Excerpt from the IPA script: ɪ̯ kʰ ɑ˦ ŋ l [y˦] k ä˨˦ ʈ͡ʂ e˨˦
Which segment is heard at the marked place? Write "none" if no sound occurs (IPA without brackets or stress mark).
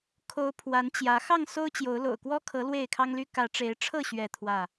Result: y˦